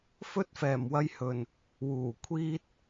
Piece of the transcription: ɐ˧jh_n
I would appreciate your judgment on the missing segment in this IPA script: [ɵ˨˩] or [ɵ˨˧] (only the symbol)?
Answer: ɵ˨˩